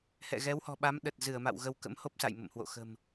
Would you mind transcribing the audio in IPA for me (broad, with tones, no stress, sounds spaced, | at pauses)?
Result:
h ɛ̰˧˨ ɣ ɛ˨˦ w h ɔ̤˨˩ ɓ a˨˦ m ɗ ə˨˩ t̚ z ɨ˧˩ ə̯ m a̰˧˨ w ɣ ə˧ w k ə̰˧˥ m h o˦˥ p̚ s a̰˧˨ j m ə̰˧˨ m h w o̰˧˨ x ə̤˨˩ m